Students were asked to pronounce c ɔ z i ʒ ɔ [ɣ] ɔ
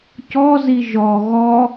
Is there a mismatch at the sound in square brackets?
no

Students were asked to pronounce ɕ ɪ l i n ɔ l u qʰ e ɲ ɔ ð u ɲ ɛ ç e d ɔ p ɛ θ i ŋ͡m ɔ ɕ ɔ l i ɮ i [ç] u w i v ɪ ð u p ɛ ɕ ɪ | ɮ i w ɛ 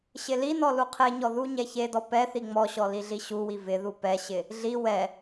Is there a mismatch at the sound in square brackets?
yes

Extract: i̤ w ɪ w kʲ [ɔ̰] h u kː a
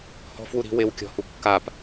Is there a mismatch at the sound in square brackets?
yes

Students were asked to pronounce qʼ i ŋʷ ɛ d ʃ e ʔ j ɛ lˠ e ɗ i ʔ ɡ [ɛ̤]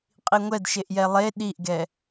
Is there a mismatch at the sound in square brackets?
yes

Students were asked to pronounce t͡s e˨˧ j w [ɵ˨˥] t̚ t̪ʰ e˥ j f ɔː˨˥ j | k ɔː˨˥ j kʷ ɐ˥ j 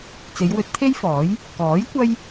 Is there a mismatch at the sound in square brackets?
no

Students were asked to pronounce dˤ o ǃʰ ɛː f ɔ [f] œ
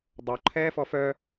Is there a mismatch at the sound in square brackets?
no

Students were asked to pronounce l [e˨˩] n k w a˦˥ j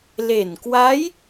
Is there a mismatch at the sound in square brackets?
no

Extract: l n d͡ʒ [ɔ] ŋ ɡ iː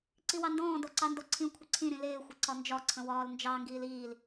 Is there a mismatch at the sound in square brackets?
yes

